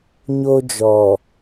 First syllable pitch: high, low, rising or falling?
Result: high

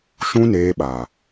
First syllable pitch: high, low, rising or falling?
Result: high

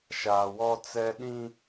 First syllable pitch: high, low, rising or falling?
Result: low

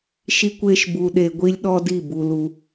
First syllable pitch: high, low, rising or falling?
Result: high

